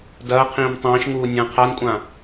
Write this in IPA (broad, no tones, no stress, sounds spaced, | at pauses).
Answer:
d ɐː qʰ ĩː m tˤ ĩː ʃ ŋ uː nʲ ɐ̃ː qʰ a n kʷʼ ã